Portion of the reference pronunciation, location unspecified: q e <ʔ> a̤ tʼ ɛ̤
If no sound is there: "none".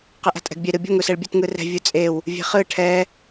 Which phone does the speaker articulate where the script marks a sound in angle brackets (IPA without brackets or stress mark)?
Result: ʔ